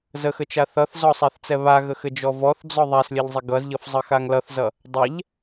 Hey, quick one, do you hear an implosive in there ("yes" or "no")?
no